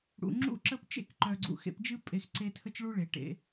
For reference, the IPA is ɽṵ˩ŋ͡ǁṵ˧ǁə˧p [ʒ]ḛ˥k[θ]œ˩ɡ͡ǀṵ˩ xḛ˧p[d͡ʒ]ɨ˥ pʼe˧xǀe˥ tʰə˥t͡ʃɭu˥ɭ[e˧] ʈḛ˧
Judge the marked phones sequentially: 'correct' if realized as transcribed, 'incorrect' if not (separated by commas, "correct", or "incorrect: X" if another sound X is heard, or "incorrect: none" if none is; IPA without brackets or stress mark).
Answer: incorrect: t͡ʃ, incorrect: ǃ, correct, incorrect: e˩